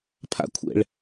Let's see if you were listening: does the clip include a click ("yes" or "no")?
no